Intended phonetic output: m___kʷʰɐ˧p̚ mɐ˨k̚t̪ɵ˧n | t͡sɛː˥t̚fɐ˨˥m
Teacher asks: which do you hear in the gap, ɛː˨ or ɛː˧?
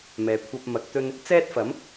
ɛː˨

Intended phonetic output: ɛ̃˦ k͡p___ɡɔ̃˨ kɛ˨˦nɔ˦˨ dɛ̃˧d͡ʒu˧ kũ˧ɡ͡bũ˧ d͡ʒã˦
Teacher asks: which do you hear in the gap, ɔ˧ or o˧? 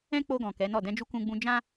o˧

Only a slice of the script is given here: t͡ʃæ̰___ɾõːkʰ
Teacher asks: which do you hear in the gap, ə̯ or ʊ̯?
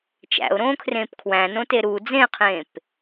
ʊ̯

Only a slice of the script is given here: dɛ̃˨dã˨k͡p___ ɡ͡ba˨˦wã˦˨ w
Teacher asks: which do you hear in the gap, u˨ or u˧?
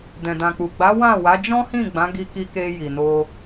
u˨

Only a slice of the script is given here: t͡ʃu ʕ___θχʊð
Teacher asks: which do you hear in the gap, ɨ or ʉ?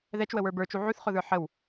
ʉ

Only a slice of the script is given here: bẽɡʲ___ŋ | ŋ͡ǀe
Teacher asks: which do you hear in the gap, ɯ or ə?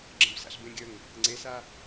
ə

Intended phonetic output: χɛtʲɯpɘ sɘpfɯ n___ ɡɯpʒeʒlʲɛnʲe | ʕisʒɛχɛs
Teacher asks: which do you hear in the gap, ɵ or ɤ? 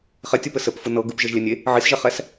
ɤ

